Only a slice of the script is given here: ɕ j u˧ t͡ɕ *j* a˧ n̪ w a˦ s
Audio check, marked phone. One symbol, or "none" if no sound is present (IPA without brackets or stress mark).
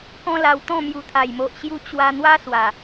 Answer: w